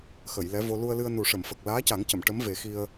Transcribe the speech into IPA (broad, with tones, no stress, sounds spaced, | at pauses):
x ə˨˩˨ j l ɛ˧˥ v o˧ l u˧ ə̯ l ɨ˧ ə̯ n u˨˩˦ ʂ ə˨˩˨ m f ə˨˩ k̚ l aː˧˥ c a˨˩˦ ŋ c ə˨˩˨ m ʈ ə˧˥ m v e˨˩˦ x i˧ ə̯